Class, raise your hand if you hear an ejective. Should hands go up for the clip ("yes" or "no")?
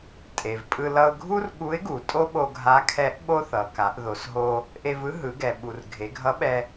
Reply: yes